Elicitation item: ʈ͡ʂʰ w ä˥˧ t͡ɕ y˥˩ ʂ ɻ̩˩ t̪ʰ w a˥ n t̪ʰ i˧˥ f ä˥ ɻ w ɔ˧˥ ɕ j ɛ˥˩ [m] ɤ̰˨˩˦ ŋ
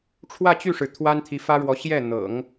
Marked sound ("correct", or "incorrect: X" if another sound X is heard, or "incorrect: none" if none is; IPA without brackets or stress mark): incorrect: n̪